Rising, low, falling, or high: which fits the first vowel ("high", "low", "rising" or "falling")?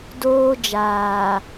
high